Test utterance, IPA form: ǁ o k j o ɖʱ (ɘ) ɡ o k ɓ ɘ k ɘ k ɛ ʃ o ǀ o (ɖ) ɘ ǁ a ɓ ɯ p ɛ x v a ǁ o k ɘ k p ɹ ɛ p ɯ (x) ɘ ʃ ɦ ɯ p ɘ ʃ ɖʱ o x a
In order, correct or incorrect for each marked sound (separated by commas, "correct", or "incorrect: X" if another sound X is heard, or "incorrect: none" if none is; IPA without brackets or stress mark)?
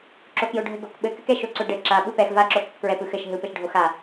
correct, correct, correct